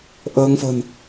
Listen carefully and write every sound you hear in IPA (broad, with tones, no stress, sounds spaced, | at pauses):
ʔ əː˧ ŋ f ə̤˨˩ n